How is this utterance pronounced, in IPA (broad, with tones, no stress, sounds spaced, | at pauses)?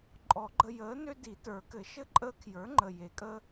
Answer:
ǃʼ ɔ˨˩˦ ɡ͡ǃ ə˦ j əː˩˥ n ø˦ d i˨˩˦ t ə˞˨˩˦ k ɘ˨˩˦ ʃ ɘ˥˨ ǃʼ əː˦ kʰ j ə˞˩˥ ŋ͡ǃ ə˨˩ j e˨˩˦ kʼ ə˦